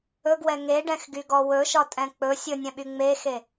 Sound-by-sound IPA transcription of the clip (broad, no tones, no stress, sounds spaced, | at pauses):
ɵ ɡ w ɛ ŋ e ɖ ɛ̃ x ɡ y ɡ ɔ w ɵ ʃ ɒ tʼ ɛ̃ k͡p ɵ sʲ ɵ nʲ ɛ̃ ɓ y ŋ͡m e x e